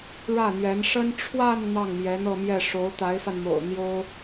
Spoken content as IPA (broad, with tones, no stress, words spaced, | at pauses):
ɻä˥˩n̪ɥɛ˧˥n ʂə˥n ʈ͡ʂʰwa˥˧n n̪ɑ˥˩ŋmjɛ˧˥n̪ɤ˥˧mjɛ˥˩ ʂo˧˥ʊ̯t̪a˧˥ɪ̯fa˧nmo̰˨˩ʊ̯ n̪jo˥ʊ̯